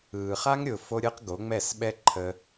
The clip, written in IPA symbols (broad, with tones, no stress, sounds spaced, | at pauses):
ɯː˨ χ a˦ ŋ ɾʲ ʊː˨ f o˦ ɾʲ ɯ˦ q ɡ o˨˦ ŋ͡m ɛ˦˨ s ɓ ɛ˦ ǃʰ ə˧